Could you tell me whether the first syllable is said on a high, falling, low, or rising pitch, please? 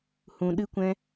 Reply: low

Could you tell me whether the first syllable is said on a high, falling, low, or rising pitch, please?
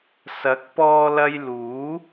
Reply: rising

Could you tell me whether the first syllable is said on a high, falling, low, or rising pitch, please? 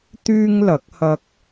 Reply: high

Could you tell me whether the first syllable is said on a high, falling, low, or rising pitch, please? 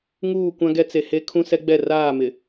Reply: falling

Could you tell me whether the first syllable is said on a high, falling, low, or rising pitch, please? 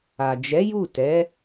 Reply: low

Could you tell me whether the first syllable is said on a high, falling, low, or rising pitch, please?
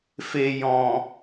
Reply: low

